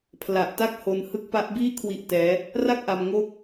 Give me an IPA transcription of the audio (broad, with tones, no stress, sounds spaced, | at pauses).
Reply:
pʰ l a˨˩ ʔ t a˦˥ k̚ h o˧ n h ɯ˦˥ k̚ p a˦˥ ʔ b iː˥˩ kʰ w i˦˥ ʔ t ɛː˦˥ | r a˥˩ k̚ ʔ a˧ m ŋ o˦˥ k̚